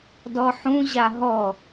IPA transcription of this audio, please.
d ɔ ħ ũ ʑ a ɦ ɔ

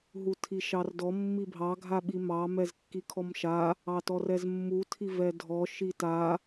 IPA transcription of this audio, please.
ɦ u tʰ i ʃ ɑ r d ɔ mː i bʱ ɑ ɡʱ a ɓ i m ɑ m ɛ z kː i kʰ ɔ m ʃ a | ɑ t ɔ r ɛ z mː u tʰ i v ɛ dʱ ɔ ʃ i t a

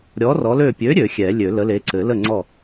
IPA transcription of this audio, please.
ɾʲ ɔ˨˥ r ɔ˨˥ l ø˥˨ pʲ ø˨˥ ɾʲ ø˨˩˦ xʲ ɛ˨˩˦ lʲ ø˨˩˦ l ə˨˥ l e˨˥ ǀ ɘ˨˩˦ l ə˥˨ ŋ͡ǀ ɔ˥˨

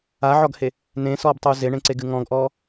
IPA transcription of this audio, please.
a ʕ ɔ ɡ h e | n ẽ s ɔː b tˤ uː z e ɳ ẽ ǀ e ɡ ɨ ŋ ɔ̃ ɡ ʔ ɔː

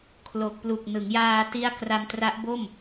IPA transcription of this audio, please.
kʰ l o˨˩ k̚ p l u˨˩ k̚ n ɯ˩˦ ŋ j aː˧ t i˦˥ a̯ k r a˧ m t r a˦˥ ʔ b o˥˩ m

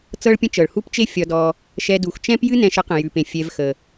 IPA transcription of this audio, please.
t͡s ɤ˥ ɭ pʲ ə̃˥ t͡ʃ ɤ˩ ɭ h u˦ p t͡ʃ e˦ fʲ ɒ˨ d ɔ˨ | ʃ ɛ˨ d u˩ x t͡ʃ ɛ̃˥ p j ɨ˥ n ɛ̃˨ ʃ ə˦ q ə̃˩ j ʉ˩ p ẽ˩ fʲ ɛ˨ v x ə˩

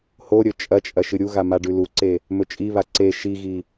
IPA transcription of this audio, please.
h o ɾʲ ɵ t͡ʃʼ ɐ t͡ʃʼ ɐ ʃ ɨ ɾʲ u ɣ a m a ɖ ʉ l u ǀ e | m ɵ t͡ʃʼ i β a ǀ e ʃ i ɣ i

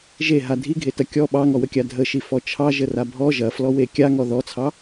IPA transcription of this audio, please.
ʒ e ɦ a dʱ i ɡʱ e t ɐ kʲ ɔ ɓ ɑ ŋ ɔ w ə kʲ a dʱ ə ʃ i f ɔ t͡ʃʰ ɑ ʒ ə r a bʱ ɔ ʒ ɐ f l ɔ w e kʲ a ŋ ɔ ð ɔ t͡sʰ ɑ

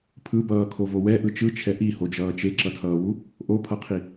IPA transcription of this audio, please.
pʰ ɯ b ʌː kʰ o v o w ɛ ʔ ɯ t͡ʃ ɯ t͡ʃʰ ɛ ʔ i h o d͡ʒ ʌː t͡ʃ e ǁ ʌ tʰ ʌː w u | ʔ o pʰ ʌ qʰ i

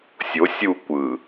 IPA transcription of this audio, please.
sʲ o sʲ u kʷ ɯ

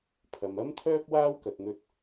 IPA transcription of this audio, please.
pʰ ɐ˨ m ɐ˥ m t̪ʰ œː˥ p̚ w aː˥ w k ɐ˨ t̚ n̪ ɵ˧ t̚

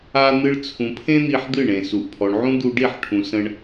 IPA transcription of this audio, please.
a˧ n̪ ɨ˧ ɭ t͡sʰ ũ˨ pʰ ẽ˦ n̪ i˧ ħ d̪ ɨ˦˨ ɳ ẽ˨ s u˨ ʔ pʰ ɔ˨ ɳ ʕ ũ˦ d̪ u˧ ɖ i˦˨ ħ ʈʰ ũ˨ s ə̃˧ ɳ

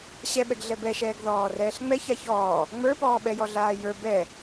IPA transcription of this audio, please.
ɕ ɛ ɓ ɛ ɡ ɮ ɛ b ɛ ʃ ɛː ɡ ð ɔː r ɛː ɬ ŋ͡m ɛ ç a ç ɔː | ŋ͡m ə˞ p ɔː ɓ ɛ j ɔ ɮ aː j ə˞ b ɛ

